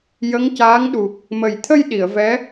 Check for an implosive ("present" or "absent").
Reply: present